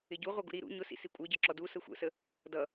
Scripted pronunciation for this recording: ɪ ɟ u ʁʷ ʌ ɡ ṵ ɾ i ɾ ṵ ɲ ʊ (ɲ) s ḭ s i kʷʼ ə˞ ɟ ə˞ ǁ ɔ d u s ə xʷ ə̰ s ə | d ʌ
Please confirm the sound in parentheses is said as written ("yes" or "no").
no